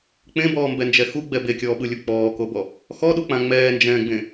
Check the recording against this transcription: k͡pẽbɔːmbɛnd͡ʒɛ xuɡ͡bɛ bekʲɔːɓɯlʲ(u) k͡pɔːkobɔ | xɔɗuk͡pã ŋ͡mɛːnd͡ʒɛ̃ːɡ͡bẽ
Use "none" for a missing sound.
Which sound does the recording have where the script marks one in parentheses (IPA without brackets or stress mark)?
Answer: u